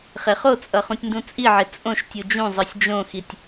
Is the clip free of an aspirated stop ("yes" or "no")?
yes